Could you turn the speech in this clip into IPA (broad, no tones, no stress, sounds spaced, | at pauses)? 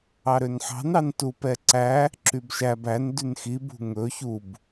ɑ ɾ ø n ħ ɑ̤ n ɑ n t u p ɛ ǀ æ | ǁ y b ʃ æ b æ n d y n x i b ṳ ŋ ɵ ç u b